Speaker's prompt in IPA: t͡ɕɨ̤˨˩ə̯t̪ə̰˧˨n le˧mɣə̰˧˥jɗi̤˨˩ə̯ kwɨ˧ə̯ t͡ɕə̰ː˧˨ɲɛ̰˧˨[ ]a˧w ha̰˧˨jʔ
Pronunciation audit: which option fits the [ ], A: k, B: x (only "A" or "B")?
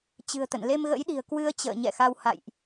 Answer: B